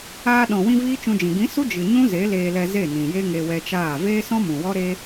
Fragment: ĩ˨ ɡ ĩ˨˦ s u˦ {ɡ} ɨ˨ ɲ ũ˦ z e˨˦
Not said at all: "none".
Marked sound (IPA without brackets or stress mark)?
d͡ʒ